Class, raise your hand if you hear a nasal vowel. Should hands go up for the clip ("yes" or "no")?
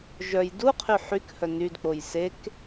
no